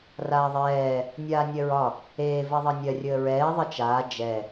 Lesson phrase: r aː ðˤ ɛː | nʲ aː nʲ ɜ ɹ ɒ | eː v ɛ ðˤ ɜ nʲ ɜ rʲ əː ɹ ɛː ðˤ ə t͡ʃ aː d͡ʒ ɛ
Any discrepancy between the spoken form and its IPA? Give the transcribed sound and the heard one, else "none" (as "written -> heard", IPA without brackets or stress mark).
none